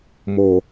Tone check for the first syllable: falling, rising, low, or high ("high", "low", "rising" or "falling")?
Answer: low